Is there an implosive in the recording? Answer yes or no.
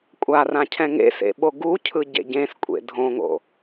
yes